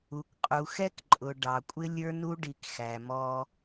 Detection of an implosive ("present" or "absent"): absent